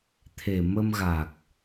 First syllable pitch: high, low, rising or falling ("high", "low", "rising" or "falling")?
low